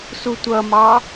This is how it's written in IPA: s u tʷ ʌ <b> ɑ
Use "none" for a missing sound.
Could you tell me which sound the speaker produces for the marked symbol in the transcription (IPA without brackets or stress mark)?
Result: m